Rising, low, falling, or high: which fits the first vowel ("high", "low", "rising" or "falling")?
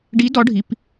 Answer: rising